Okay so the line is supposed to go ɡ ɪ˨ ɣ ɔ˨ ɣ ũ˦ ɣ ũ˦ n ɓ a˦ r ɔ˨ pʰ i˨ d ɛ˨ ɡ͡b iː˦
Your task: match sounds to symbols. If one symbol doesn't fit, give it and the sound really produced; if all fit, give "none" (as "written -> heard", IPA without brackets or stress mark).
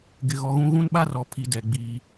none